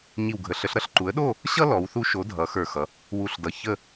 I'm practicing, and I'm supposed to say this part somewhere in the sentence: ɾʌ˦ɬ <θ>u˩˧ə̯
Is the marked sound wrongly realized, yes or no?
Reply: yes